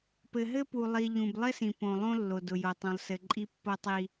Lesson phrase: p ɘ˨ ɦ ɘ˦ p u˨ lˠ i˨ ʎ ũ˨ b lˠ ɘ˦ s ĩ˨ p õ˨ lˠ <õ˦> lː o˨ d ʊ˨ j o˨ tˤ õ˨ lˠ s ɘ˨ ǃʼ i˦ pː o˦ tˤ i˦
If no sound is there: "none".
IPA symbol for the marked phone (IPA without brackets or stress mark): õ˦